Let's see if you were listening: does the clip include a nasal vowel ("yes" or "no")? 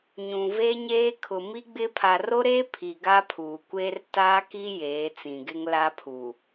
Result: yes